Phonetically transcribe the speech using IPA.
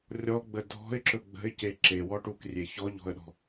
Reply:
rʲɔ ɡ͡bədʱɔ̤ɪ̯ǁɵ ɡ͡bə̤ɪ̯ce ǁewɔʈuk rʲeçɔʎɔ̤ə̯ɗɔ̤

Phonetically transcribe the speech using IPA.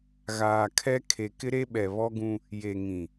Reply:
ɣaː˨kʰɛ˦ kʰe˨kɪ˦ɾe˦ɓɛ˨ βɔ˦ɡũ˦ | je˨ ŋĩ˨

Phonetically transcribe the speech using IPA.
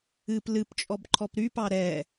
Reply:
ɨp lɨpt͡ʃʼɔbǃʰɔp ɾypɑ ɾɛ

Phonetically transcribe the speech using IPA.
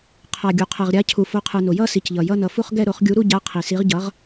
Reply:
qʰa˩ɡʲu˩ qʰɛ˩ʁɾʲa˩˥cʰu˩fo˩˥ qʰɯ˩ no˩jʌ˦˨si˩cʎʌ˩ jʌ˦˨nʌ˩ fu˦˨χɡɛ˦˨ɾo˨˩˦χ ɡʲu˨˩˦ɾu˦˨ɟa˩˥ qʰi˩si˩˥ʁɟʌ˩˥ʁ

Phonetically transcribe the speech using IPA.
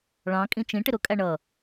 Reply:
ɭɑ̃ kʼĩt͡ʃĩ ʈɪɾʊ kʼæɳʌ

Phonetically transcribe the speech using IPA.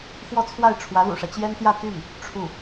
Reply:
xwɔ˥˧t͡sʰwa˥˩ɪ̯ ʈ͡ʂʰwä˧˥lṵ˨˩ʂä˦ t͡ɕjɛ˥nt̪jä˥˧ t̪y˥˩n | ʈ͡ʂʰu˥˩

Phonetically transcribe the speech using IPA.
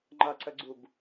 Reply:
ŋ͡ǃʌǀəɡ͡ǀub

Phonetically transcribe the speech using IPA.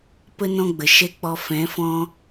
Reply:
pə˦ nɔ̃˦ɡ͡bə˨ ʃɛ˦k͡pɔ˧ fɛ̃˨˦fɔ̃˦

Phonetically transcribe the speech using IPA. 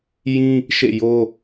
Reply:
jĩ˦ | ʃḛ˦˨ jo˦

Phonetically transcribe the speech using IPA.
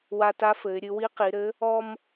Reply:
wa˧ta˧˥fɘ˩˧ɪ̯ ɾʲɨ˩˧wi˧˥qi˩˧ɾɘ˧˥ | ɔ˧m

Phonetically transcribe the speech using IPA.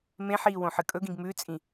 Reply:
mẽħiːwõħɨ kʼɵɡĩɡ mʉt͡sʼĩ

